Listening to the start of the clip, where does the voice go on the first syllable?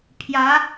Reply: rising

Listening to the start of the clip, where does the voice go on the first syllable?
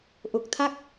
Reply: low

